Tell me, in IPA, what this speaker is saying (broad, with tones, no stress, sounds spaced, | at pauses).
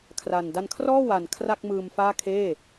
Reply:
kʰ r a˨˩ n d a˧ n kʰ r ɔː˥˩ w a˨˩ n kʰ r a˥˩ k̚ m ɯː˧ m f aː˥˩ kʰ eː˥˩